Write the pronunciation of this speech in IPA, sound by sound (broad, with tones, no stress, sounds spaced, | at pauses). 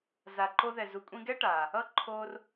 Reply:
z a˨ ǃ o˧ ð ɛ˨ z u˨ kʷʼ ĩ˧ ɡ ɛ˦ ʈ aː˨ | ʌ˦ ǃʰ oː˦ r